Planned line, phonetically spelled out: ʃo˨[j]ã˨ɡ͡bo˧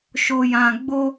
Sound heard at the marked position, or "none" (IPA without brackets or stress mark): j